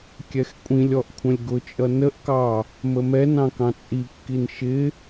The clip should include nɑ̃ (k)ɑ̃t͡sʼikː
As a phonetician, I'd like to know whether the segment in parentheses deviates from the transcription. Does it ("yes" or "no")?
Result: no